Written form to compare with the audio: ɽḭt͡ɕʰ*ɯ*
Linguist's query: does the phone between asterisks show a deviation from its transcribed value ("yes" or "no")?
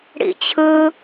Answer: no